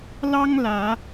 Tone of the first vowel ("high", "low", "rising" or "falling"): high